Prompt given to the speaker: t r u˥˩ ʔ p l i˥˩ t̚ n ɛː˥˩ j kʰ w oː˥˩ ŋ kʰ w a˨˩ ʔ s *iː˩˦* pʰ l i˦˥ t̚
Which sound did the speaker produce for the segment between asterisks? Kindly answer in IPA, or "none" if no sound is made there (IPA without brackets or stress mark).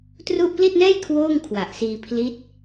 iː˧